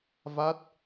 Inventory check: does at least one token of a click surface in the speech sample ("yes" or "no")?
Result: no